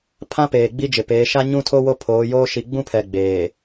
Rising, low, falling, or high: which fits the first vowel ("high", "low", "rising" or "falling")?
high